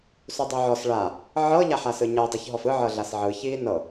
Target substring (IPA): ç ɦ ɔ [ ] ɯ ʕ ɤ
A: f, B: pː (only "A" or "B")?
A